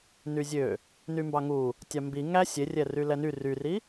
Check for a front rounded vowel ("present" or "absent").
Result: present